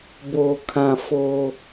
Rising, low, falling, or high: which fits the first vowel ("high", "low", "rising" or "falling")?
low